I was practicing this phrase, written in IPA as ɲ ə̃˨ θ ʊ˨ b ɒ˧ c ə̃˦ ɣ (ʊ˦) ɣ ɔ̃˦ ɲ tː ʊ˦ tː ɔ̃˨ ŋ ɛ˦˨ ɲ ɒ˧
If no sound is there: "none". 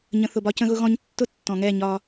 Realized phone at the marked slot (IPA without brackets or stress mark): ʊ˦